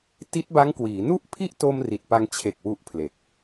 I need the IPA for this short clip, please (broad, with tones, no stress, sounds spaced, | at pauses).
t i˦˥ t̚ b a˦˥ ŋ k w iː˩˦ n u˥˩ ʔ pʰ i˥˩ ʔ t o˧ m r i˨˩ t̚ p a˧ ŋ t͡ɕʰ e˨˩ k̚ w u˥˩ ʔ pʰ l e˨˩ k̚